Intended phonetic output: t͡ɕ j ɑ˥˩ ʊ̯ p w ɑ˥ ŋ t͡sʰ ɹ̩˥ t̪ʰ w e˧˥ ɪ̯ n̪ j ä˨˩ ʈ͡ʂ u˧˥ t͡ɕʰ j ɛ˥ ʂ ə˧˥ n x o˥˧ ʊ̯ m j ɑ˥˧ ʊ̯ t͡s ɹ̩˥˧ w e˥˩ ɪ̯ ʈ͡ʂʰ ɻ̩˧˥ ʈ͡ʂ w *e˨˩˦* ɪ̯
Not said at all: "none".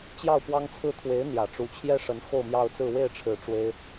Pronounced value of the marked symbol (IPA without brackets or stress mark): e˥